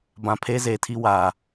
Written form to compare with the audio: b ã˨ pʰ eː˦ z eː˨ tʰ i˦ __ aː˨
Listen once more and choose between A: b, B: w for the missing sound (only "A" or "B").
B